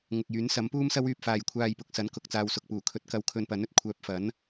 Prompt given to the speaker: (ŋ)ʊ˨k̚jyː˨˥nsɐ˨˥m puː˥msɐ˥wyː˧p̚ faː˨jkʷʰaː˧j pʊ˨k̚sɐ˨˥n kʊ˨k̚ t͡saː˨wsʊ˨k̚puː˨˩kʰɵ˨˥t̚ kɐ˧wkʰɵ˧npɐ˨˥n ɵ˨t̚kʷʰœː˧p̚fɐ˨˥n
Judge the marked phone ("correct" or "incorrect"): correct